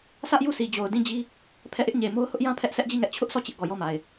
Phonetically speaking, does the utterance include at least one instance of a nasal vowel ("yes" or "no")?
yes